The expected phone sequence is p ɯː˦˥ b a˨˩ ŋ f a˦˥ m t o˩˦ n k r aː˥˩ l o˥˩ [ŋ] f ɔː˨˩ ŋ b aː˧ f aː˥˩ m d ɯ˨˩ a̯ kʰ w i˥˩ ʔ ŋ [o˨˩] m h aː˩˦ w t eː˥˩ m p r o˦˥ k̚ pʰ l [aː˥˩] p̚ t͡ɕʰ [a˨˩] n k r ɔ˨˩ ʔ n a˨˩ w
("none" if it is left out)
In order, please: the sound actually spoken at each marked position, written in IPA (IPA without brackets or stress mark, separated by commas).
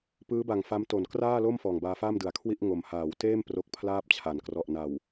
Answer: m, o˨˩, aː˥˩, a˨˩